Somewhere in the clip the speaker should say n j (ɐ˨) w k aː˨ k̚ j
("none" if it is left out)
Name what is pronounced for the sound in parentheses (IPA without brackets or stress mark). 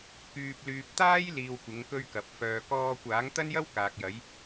ɐ˥